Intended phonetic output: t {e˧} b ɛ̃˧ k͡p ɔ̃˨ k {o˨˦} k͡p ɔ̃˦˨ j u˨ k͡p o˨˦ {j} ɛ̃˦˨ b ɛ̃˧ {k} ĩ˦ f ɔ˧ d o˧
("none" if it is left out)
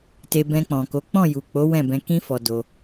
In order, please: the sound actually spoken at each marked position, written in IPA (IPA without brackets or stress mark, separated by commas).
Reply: e˧, o˨˦, w, k